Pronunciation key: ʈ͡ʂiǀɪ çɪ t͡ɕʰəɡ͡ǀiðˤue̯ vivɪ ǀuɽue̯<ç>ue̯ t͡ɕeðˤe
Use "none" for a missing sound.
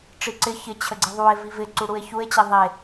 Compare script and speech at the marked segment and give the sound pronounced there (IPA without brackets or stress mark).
ç